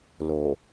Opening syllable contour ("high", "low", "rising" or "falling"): low